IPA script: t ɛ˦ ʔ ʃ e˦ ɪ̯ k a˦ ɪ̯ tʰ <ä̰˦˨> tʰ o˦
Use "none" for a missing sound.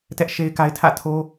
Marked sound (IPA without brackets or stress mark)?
ä̰˦˨